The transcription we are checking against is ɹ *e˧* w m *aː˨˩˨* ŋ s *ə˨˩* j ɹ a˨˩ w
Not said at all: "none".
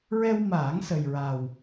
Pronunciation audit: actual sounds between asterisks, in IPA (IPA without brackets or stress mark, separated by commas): ɛ˧, aː˨˩˦, ə˨˩